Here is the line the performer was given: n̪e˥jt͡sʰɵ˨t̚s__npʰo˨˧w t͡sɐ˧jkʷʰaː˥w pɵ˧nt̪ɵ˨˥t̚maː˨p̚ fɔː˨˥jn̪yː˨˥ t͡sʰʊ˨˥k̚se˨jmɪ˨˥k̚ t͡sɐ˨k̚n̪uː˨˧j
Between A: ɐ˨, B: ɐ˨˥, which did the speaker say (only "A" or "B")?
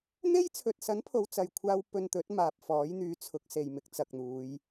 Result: B